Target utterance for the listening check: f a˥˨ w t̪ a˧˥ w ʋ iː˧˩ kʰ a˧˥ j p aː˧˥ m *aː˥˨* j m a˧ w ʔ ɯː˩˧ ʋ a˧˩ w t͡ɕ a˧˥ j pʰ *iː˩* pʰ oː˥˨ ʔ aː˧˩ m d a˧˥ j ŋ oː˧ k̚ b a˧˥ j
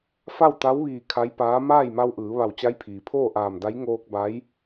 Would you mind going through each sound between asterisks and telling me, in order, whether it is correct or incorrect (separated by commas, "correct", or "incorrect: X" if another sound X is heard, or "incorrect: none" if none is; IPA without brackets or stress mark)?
correct, correct